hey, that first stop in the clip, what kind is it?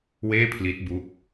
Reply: aspirated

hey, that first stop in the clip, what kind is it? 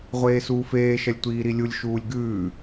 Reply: plain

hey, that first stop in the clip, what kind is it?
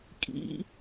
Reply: ejective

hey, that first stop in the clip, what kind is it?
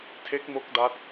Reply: aspirated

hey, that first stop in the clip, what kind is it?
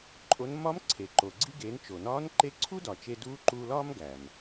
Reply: click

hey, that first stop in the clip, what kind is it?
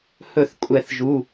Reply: ejective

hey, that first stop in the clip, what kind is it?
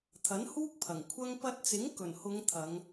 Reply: aspirated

